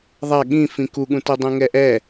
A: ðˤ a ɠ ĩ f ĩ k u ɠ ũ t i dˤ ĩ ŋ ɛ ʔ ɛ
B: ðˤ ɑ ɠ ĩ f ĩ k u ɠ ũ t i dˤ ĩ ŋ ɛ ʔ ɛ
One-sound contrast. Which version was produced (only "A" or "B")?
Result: A